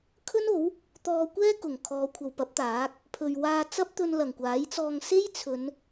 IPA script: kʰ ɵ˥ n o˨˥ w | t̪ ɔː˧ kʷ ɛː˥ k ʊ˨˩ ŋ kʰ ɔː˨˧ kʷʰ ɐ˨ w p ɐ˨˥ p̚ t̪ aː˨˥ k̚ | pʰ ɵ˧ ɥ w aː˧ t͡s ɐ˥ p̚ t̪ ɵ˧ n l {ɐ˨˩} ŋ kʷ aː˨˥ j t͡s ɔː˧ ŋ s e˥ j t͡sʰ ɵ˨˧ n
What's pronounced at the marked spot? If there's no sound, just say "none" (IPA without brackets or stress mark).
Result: ɐ˨˩